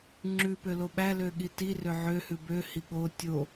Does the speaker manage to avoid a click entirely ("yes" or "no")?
no